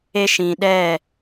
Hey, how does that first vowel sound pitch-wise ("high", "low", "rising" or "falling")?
high